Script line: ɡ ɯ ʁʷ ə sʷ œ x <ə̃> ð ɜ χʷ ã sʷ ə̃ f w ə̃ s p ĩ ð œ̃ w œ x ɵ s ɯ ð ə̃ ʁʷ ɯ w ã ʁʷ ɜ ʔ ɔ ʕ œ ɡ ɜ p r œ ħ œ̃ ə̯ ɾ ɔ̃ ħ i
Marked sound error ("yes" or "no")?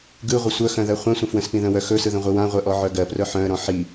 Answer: yes